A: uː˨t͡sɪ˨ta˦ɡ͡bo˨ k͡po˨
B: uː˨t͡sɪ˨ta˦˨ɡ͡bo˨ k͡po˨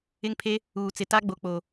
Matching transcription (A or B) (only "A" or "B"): A